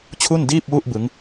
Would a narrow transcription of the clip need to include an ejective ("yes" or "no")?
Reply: no